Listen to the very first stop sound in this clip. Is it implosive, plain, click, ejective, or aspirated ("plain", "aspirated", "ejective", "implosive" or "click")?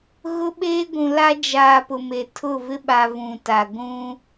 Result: implosive